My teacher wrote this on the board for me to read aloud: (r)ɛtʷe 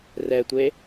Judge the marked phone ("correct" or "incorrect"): correct